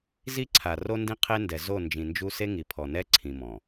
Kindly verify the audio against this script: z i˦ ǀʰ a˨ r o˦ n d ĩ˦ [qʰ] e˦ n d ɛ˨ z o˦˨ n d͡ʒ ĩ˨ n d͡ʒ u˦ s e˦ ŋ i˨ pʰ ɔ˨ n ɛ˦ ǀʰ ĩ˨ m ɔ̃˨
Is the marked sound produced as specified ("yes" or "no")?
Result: yes